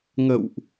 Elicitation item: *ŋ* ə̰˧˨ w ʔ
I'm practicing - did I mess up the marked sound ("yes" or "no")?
no